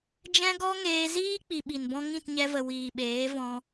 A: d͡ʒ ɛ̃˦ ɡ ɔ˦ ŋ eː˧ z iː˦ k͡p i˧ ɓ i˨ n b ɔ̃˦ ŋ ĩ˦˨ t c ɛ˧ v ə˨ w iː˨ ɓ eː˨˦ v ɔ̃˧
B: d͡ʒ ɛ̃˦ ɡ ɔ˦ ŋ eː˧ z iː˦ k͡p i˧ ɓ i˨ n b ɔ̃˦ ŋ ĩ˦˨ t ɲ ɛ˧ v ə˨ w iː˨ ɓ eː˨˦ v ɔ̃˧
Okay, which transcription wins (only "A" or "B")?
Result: B